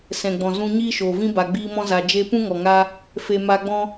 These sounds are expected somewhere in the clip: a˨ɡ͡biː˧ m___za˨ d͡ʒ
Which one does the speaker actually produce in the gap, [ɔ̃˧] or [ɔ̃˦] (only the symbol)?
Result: ɔ̃˧